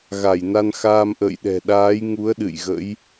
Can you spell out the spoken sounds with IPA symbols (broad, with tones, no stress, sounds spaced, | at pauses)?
ɣ a˧˩ j n a˧ n x aː˧ m ʔ ə̰ː˧˨ j ɗ ɛ̤˨˩ ɗ aː˨˦ j ŋ u˨˦ ə̯ ɗ ɨ̰˧˨ j ɣ ə̰˧˥ j